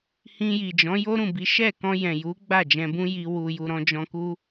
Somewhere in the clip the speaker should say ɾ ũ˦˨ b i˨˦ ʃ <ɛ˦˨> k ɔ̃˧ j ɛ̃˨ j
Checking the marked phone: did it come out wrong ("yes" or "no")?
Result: no